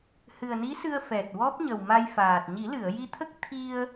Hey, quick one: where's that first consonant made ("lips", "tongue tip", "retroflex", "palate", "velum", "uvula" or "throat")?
throat